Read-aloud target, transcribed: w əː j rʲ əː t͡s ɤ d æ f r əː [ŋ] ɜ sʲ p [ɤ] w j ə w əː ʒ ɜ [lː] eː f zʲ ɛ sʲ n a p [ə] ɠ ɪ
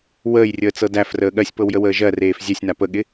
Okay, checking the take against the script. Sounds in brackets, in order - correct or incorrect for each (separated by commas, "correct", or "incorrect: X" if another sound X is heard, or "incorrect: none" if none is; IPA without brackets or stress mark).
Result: incorrect: ɠ, correct, incorrect: r, correct